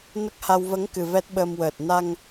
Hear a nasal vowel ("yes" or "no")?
no